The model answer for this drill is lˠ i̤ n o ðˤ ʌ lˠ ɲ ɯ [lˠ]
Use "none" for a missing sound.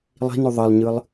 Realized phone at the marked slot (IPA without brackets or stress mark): lˠ